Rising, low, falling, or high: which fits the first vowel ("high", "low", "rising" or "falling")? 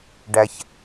high